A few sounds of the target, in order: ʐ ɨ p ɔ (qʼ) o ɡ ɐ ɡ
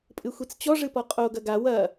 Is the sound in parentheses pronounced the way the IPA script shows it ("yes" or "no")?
yes